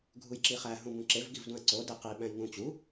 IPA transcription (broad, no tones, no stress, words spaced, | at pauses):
ɡʱujǁiχæ ɦũbũǁev ɡivdũɐ̯ǀo deqi ɓæ̃jŋũ t͡ɕu